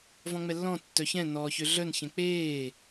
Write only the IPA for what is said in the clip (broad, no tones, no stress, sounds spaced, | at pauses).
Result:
v ɔ̃ ŋ͡m ɛ lː ɔ̃ tː œ ç ɛ̃ n ɔː ç ø ɮ œ n ç ɛ̃ k͡p eː